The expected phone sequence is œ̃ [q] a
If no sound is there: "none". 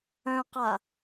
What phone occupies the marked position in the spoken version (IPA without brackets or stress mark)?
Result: q